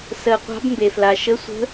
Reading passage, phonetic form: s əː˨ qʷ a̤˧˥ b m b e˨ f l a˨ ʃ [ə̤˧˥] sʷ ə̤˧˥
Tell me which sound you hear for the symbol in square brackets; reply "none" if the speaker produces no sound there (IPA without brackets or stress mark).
ə˧˥